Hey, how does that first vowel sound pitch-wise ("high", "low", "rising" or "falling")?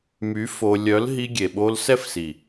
rising